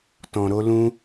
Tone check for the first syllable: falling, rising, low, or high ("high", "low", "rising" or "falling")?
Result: low